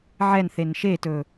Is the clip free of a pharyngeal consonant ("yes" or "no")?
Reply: no